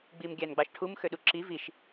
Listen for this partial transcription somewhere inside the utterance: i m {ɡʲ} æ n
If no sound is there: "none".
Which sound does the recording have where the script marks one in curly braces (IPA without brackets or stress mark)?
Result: ɡʲ